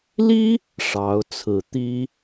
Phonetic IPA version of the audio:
l i˥ | ʂ ɑ˧˥ ʊ̯ t͡sʰ ɹ̩˨˩ t̪ i˥

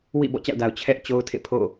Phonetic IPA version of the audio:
w ḭ˦˨ b ɔ̰˦˨ t͡ɕ a̰˦˨ ʊ̯ d a˨ ʊ̯ t͡ɕʰ ɛ˦ ʔ t͡ɕ o˦ ʊ̯ tʰ ḛ˦˨ pʰ o̰˦˨

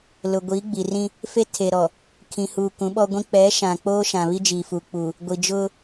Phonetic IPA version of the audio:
l ʊ˨ ɡʷ iː˨˦ ɡ͡b i˨ r ĩ˦ | f e˦ tʰ e˨ ɾ ɔ˨ | kʰ ĩ˨ h u˨ k ũ˨˦ ɓ ɔ˦ ɡʷ ĩ˦ k͡p ɛ˨˦ ʃ ã˨ k͡p oː˦ ʃ ã˨ β i˦ d͡ʒ iː˨ f u˨ k͡p u˨ | ɡʷ i˨ d͡ʒ ʊ˦

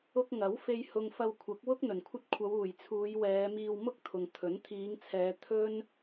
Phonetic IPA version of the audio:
ʊ˧ k̚ ŋ ɐ˨˥ w f e˧ j h ʊ˨ ŋ f ɐ˧ w kʷʰ ɐ˨˥ k̚ w ʊ˥ k̚ n̪ ɵ˨˩ n kʷʰ ɐ˥ t̚ kʷʰ ɐ˨˧ w uː˨˩ j t͡sʰ uː˨˧ j w ɛː˨˧ m iː˧ w m ʊ˥ k̚ t̪ʰ ʊ˨ ŋ t̪ʰ ɵ˨˥ n t̪ʰ iː˨˧ ŋ t͡sʰ ɛː˨˧ t̪ʰ ɵ˥ n

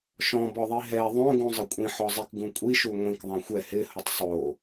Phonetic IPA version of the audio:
ʃ ɔ̃ b ɔ ðˤ i ɦ ɛ ðˤ õ ɡ ũ zˤ ɪ kʷʼ ĩ ħ ɔ zˤ i k ɡ ũ kʷʼ i ʃ u ŋʷ ĩ k ðˤ ã xʷ ɛ h ɪ h ʊ tˤ sˤ o

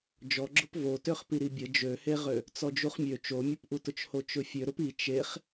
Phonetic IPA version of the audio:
d͡ʒ ɔ ɡ͡ǁ ʊ p v o t ø χ p i ɾ i bʲ ə d͡ʒ ø h e ʁ ø | t͡s ɔ d͡ʒ u χ mʲ ø t͡ʃ o mʲ ʊ p ʔ u t ʊ t͡ʃ h o t͡ʃ ʊ fʲ ø ɾ ʊ p i t͡ʃ e χ

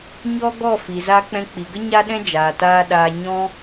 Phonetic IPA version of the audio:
ɲ ɔ˦ ɡ ɔ˦˨ f i˨ z a˧ k͡p ɛ̃˧ k͡p i˨ ɡ ə˦ ɲ a˦ ɗ ɛ̃˦ d͡ʒ aː˨ t aː˧ ɗ aː˧ ɲ ɔ̃˦

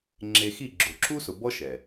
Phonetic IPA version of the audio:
ŋ͡ǁ e˧ x i˦˨ ɡ͡ǁ o˨ ǁ u˦ s ʊ˨ b ɔ˦ ʃ ɛ˨

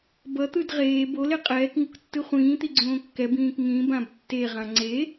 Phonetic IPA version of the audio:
b ʌ t̪ ɯ d ʁ eː b o l e qʼ ɛː k ŋ u k tː ɯ χʷ ĩː t̪ i ɡ͡ǀ õː kː ɛ b ĩː k ŋ ĩ b ã b tː e ʁ ã ŋ͡ǀ e

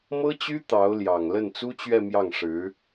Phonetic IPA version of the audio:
m ɤ˥ t͡ɕ y˥ t̪ ɑ˧˥ ʊ̯ l j ɑ˨˩ ŋ l ə˥˩ n t͡s u˥ t͡ɕ ɥ ɛ˥˧ m j ɑ˥˩ ŋ ʂ ɻ̩˧˥

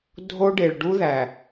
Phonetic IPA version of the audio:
dʱ o˦ ɖ e˨ ɭ ɖ u˦ ð æ˨

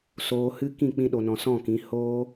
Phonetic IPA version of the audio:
s oː˧ h ɨ˦ k ĩ˦˨ k͡p ĩ˧ ɗ o˨ n ɔ̃˨ s ɔ̃˦˨ k ĩ˨˦ h oː˦

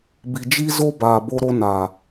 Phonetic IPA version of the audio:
b i˨ d͡ʒ i˦ z o˦ b aː˨ b o˦ ɾ o˦ n a˨

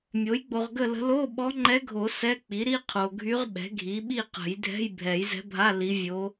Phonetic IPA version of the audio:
mʲ o˩˥ j ɡ͡b o˨ ʁ ɡ ə˥˨ l ə̤˧˥ l o˧˥˧ ɓ ɔ˧˥ ŋ͡ǃ ɛ˧˥ ɡʱ o˨˩˦ s ɛ˧˥˧ k͡p i˩˥ ɾ i˧˥˧ qʰ o˨ ɡʱ y˧˥ ʁ ɓ ɛ̤˩˥ ɡʱ i˩˥ ɓ i˥˨ q ə̤˨˩˦ j dʱ ɛ̤˧˥˧ j bʱ ɛ˨˩˦ j z ɛ̤˧˥ bʱ a˧˥˧ l i˧˥ vʲ o˧˥

